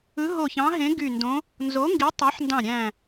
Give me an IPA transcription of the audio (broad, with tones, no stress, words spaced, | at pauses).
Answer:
ɯ˨˥ɦo˧˩çɑ̃˨˥ɦẽ˨˥ ɡy˧˩ndõ˨˥ | nzo˨˥ŋɡi˨˥tˤɑ˨˥ħndɑ̃˧˩ ɾʲæ̃˧˩